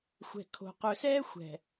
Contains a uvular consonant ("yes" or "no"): yes